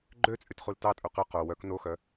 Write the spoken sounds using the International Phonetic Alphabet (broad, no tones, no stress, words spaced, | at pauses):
ɡ͡ǃøt͡sʼytχul tɑtʼu qʉ qo wœk noxœ